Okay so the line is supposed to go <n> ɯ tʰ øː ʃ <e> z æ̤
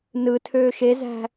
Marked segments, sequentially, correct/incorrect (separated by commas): correct, correct